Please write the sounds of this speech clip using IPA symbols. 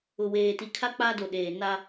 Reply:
ʊ˨ w eː˨ t i˨ kʰ a˦ k͡p a˦ d o˨ ɗ eː˨ n a˦

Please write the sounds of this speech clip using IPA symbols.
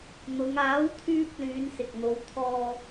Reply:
n̪ ʊ˨˧ ŋ aː˨˥ w t̪ʰ yː˧ p̚ l yː˨˧ n s ɪ˨ k̚ n̪ o˨˧ w t̪ʰ ɔː˧

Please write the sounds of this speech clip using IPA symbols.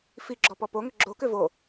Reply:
f i ɡ͡ǁ ɔ p ɔ p o ŋ ʏ ɡ͡ǁ o k ʏ v o

